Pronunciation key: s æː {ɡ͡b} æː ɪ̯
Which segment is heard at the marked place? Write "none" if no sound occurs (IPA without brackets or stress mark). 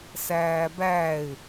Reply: b